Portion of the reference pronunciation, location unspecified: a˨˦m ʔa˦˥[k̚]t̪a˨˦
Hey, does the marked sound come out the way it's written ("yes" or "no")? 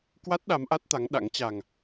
no